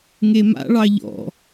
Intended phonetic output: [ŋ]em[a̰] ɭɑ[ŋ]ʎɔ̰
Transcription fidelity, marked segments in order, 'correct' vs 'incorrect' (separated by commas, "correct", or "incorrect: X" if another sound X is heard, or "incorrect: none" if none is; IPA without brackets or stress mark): correct, correct, incorrect: none